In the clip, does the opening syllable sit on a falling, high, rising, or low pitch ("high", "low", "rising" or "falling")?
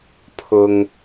low